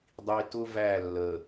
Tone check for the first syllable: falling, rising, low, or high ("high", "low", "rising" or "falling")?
low